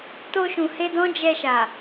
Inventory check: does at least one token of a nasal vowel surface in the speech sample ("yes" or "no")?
yes